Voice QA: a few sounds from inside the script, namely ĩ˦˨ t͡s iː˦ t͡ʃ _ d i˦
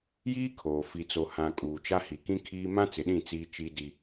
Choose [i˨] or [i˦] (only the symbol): i˦